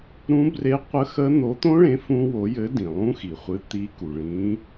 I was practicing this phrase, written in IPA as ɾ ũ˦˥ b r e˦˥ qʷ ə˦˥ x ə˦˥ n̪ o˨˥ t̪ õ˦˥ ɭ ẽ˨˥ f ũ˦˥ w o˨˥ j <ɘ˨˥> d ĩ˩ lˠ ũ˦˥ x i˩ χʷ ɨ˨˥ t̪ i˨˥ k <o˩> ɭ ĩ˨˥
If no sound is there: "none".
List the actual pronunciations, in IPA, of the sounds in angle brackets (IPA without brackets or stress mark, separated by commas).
ɘ˨˥, u˩